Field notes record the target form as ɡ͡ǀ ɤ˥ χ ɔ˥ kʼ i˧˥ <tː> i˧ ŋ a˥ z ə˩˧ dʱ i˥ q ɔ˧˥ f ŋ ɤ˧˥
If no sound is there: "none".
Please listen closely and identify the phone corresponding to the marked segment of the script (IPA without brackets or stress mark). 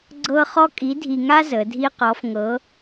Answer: dʱ